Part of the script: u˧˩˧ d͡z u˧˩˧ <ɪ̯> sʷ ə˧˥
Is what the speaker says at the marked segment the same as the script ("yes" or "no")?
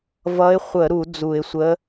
yes